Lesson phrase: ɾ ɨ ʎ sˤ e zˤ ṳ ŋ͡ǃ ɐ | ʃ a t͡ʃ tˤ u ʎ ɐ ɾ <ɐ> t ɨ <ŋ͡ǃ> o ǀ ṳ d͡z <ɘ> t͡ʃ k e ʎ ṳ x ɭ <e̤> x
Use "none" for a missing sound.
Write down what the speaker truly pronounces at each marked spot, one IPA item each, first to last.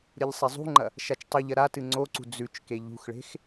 a, ŋ͡ǀ, ʉ, e̤

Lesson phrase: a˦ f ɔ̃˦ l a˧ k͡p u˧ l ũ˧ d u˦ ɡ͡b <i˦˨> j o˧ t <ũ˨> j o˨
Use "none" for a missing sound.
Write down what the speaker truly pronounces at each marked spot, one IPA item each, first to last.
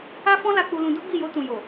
i˦˨, ũ˨

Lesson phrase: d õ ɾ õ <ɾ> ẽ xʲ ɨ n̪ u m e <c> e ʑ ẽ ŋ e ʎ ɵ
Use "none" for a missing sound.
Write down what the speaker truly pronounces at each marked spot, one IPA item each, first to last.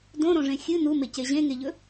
ʐ, c

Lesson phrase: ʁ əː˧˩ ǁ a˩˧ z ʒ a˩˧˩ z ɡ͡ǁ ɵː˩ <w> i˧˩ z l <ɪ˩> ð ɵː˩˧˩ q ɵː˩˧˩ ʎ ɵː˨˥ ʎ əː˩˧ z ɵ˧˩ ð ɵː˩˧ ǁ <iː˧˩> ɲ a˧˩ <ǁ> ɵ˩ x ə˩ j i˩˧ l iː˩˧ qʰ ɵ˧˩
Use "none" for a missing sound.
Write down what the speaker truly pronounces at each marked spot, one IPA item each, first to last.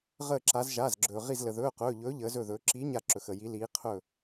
ʁ, ə˩, iː˨˥, ǁ

